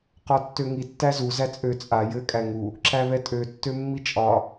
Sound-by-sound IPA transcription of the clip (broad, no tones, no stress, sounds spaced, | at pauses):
q ɒ tː ø ŋ i tː æ z u z æ t͡sʼ ø t͡sʼ a j ɘ kʼ æ ŋ u | ǁ æ β ɛ tʼ ø tː ø mː i t͡ʃʼ ɒ